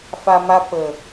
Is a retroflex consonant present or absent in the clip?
absent